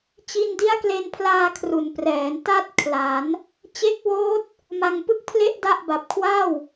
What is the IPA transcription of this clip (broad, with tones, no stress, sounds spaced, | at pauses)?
t͡ɕ i˧ n d i˦˥ a̯ k l e˧ n pʰ l aː˧ kʰ r u˩˦ n p r ɛː˩˦ n t a˥˩ t̚ kʰ l a˩˦ n | t͡ɕ e˦˥ k̚ w oː˦˥ t̚ | m a˧ ŋ p ɯ˥˩ k̚ pʰ l e˥˩ ʔ d a˥˩ ʔ b a˨˩ p̚ kʰ w a˥˩ w